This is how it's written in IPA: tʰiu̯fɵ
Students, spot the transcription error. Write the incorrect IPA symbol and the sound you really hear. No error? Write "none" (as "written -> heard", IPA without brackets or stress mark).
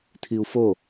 ɵ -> o